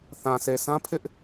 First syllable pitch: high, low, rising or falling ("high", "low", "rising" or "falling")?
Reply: low